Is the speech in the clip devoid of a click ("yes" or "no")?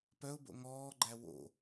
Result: no